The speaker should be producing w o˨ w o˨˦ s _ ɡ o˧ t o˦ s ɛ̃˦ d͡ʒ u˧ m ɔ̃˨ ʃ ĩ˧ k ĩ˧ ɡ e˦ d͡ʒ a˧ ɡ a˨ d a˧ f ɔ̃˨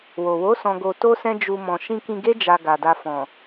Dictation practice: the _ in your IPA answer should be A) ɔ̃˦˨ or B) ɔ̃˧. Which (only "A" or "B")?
B